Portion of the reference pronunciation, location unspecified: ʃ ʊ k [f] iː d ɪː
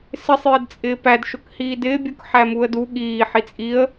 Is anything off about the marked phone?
yes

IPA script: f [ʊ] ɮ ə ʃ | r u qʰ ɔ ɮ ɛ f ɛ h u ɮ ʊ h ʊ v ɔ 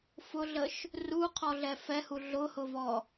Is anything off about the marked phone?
no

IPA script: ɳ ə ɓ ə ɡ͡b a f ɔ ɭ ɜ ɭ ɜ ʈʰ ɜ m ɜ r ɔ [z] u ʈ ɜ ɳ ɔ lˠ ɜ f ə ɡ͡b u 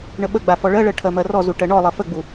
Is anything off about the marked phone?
no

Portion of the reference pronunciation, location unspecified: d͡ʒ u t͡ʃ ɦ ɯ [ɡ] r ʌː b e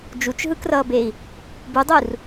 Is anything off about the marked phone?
yes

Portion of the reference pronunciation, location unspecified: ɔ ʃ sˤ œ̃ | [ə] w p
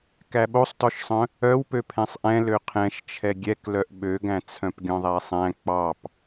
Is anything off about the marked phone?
yes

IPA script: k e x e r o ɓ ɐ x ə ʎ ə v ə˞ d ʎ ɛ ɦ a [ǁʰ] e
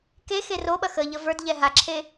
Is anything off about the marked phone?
no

